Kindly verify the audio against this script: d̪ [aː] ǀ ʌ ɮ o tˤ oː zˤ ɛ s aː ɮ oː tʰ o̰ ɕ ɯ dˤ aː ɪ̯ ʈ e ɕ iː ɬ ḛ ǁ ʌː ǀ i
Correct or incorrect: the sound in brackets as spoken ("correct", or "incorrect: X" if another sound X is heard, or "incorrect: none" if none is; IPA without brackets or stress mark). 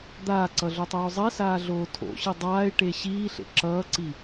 correct